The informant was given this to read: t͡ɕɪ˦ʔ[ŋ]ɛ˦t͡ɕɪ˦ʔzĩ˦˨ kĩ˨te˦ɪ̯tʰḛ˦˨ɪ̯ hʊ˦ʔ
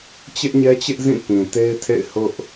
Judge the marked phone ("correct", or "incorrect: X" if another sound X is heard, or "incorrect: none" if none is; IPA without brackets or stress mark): incorrect: ɲ